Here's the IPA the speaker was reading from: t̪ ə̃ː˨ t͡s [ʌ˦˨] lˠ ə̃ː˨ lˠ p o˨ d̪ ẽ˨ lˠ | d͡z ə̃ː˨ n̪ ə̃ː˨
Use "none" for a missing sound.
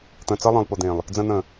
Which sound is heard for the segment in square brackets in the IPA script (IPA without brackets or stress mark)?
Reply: ʌ˦